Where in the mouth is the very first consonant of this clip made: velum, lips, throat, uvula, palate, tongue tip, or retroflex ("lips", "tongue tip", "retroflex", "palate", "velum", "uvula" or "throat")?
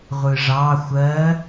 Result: uvula